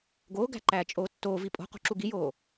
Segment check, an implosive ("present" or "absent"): absent